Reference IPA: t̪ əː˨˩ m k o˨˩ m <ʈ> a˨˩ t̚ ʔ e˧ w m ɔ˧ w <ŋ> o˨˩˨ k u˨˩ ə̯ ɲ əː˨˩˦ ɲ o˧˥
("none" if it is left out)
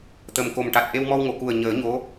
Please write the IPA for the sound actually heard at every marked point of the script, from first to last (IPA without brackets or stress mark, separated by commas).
ʈ, ŋ